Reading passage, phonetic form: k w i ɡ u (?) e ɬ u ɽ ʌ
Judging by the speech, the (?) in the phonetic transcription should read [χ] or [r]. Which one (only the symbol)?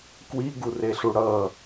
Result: r